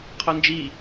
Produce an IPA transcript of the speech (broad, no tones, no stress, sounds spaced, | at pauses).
qʰ ɔ n d͡ʒ i